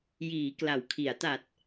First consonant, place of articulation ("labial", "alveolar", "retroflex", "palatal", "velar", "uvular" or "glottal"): palatal